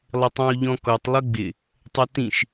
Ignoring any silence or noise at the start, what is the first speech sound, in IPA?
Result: lˠ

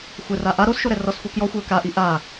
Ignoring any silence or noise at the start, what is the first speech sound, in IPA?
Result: xʷ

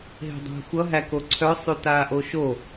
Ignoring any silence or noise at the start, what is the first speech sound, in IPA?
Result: ɦ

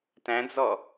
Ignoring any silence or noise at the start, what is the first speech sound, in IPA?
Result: t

